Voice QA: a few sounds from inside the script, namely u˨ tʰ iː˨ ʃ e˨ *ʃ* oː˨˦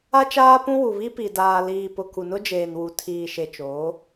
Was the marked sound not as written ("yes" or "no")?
yes